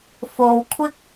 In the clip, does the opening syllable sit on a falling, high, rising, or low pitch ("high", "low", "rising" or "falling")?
low